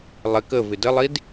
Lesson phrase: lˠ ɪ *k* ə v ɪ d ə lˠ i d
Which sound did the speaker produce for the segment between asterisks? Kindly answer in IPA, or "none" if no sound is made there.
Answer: k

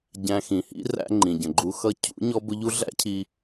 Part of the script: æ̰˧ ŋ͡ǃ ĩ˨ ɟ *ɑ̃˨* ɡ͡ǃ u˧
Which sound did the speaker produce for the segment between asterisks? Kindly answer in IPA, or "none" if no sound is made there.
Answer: ə̃˨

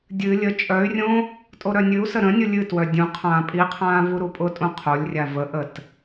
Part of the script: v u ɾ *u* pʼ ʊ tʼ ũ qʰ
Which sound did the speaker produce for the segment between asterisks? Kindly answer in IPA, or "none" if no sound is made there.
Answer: u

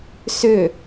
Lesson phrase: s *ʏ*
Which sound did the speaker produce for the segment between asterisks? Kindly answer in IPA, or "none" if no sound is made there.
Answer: ʏ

